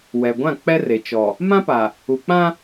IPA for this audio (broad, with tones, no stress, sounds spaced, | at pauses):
w ɛ˨ ɡʷ ã˦˨ k͡p ɛ˦ r e˨ t͡ʃ ɔ˨ | m ã˦ p a˨ | u˨ k͡p ã˦